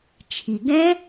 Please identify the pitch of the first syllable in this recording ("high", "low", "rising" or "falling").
low